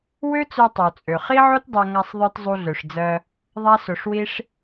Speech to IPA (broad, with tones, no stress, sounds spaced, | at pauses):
w ø˦ t͡s ø˧ tˤ o˨ t͡sʼ ø˨ χ i˦ ʕ o˦ t dˤ ø˧ ŋ a˧ sˤ ðˤ ə˞˧ t zˤ u˧ ɮ ø˨ ʂ d͡z ɜ˧ | ðˤ a˦ s o˧ ʂ w i˦ ʂ